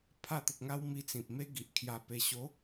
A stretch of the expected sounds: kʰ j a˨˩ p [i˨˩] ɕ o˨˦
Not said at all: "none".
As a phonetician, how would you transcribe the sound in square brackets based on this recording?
e˨˩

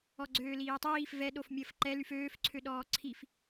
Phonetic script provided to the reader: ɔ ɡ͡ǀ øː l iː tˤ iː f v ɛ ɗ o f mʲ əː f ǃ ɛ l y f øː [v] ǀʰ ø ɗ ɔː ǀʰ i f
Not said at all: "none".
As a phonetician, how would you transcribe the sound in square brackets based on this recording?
f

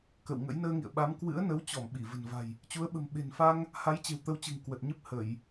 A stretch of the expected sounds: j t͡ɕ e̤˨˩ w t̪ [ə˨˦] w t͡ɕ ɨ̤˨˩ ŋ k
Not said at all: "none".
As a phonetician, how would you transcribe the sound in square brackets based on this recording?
ə˨˦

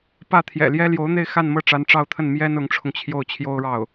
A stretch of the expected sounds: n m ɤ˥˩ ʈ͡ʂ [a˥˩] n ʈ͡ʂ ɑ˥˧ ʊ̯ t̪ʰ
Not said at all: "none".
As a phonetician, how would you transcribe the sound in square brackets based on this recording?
a˧˥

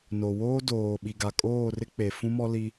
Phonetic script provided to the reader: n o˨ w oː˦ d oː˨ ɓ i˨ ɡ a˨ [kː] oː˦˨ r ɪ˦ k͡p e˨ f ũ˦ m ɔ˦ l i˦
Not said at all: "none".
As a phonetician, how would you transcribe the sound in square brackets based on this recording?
kʼ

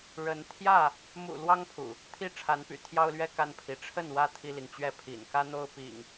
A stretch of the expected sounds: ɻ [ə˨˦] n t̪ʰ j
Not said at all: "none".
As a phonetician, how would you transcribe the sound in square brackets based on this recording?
ə˨˦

